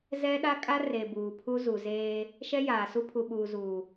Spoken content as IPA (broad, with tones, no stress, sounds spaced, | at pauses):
z ɛ˦ ɗ a˦ kʼ a˦ r e˨ b uː˨ pʰ u˦ z u˨ z eː˦ | ʃ ɛ˦ j aː˨ s u˦ pʰ u˨ ɓ uː˨ z uː˨